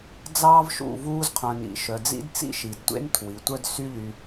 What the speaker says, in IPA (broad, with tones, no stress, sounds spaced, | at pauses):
d͡z ɑː˦ v ʃ ṵ˦˨ v uː˧ z qʰ œ̃˨ n ḭ˨ ʃ œ˨ d͡z ḭ˦ d t͡s ḭ˦ ʃ i˨ d tʷ ḛ˦ n tʰ w i˨ tʷ œ˦ d s y˦ ʎ y˧